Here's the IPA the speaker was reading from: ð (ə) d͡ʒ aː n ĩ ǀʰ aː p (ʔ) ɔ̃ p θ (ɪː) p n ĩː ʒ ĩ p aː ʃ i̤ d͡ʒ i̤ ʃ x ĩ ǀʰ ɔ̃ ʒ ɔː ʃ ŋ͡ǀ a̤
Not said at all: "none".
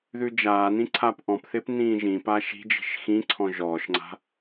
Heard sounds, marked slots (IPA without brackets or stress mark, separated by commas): ʉ, ʔ, ɪː